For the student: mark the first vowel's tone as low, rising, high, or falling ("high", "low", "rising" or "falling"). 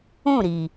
falling